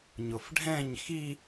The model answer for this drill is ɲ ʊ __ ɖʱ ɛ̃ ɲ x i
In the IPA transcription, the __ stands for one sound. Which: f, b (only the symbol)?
f